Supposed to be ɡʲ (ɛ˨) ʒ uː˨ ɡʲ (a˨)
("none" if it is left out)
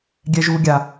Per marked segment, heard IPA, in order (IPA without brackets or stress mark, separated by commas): ɛ˨, a˨